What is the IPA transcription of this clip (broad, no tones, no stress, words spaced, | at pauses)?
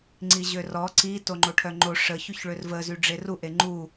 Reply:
ŋ͡ǀiʑørɔ ǀi toŋ͡ǃoʈʰœŋ͡ǃo ʂə çyçɭørvə zyɖ͡ʐeru ʔeŋ͡ǃu